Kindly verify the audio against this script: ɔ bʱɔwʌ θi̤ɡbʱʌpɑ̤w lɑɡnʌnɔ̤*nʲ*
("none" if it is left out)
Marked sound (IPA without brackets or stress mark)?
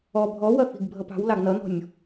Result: nʲ